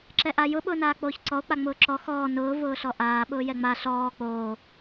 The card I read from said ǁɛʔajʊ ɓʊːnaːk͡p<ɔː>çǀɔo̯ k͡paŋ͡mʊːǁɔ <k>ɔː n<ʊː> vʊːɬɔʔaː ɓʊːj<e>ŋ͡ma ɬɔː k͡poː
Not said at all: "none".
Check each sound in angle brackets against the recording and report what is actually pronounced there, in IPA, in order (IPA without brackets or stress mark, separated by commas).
oː, x, ʊː, ɛ